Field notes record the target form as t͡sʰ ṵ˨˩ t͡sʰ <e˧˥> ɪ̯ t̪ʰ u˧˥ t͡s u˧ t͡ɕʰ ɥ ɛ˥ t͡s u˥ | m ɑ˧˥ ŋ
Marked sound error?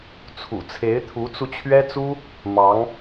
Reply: no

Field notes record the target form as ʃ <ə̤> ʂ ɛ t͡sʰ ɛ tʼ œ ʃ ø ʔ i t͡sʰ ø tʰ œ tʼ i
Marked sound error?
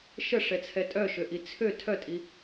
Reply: yes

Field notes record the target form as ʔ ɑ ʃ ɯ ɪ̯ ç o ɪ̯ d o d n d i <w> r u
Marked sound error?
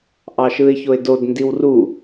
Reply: no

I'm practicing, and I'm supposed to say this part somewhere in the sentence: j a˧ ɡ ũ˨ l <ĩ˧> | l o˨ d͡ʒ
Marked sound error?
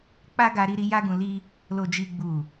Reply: yes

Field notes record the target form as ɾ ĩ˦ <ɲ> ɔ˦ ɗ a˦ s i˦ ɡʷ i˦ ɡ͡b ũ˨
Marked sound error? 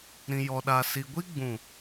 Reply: yes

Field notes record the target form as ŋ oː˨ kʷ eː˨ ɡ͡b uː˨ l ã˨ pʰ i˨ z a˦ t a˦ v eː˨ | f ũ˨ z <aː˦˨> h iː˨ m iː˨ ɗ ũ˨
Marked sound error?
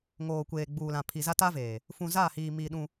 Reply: no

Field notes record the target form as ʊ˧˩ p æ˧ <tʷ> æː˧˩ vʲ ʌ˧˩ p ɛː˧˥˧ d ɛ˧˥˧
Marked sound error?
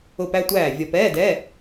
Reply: no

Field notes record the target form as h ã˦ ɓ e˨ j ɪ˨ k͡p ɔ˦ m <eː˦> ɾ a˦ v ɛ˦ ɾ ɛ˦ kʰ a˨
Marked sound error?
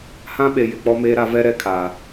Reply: no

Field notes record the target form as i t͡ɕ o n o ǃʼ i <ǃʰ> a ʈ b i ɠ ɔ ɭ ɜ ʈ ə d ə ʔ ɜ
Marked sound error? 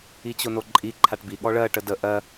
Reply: no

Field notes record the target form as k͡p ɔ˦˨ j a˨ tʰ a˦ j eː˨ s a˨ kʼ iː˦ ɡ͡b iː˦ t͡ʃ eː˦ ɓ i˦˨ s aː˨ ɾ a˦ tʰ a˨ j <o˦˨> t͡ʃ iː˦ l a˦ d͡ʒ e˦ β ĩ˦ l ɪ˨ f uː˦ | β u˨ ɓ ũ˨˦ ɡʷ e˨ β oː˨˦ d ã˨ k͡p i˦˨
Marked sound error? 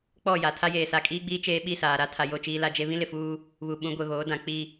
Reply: no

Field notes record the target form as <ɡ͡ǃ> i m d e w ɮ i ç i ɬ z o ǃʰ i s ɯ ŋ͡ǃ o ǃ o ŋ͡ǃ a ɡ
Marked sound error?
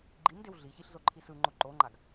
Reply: no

